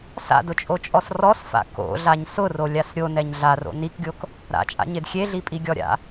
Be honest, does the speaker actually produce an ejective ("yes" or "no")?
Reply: yes